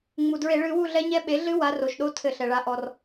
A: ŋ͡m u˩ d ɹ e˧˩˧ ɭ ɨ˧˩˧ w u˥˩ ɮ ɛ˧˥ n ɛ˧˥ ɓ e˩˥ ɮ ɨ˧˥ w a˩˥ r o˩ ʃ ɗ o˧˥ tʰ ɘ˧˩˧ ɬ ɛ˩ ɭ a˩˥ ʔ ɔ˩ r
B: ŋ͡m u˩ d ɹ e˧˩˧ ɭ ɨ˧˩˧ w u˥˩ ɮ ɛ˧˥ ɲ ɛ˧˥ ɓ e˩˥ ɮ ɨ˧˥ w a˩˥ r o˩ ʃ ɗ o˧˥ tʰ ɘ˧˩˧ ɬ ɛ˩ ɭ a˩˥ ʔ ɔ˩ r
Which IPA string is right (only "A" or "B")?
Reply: B